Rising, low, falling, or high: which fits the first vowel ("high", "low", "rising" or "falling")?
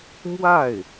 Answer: falling